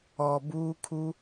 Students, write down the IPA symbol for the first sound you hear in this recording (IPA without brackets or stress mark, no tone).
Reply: ɔ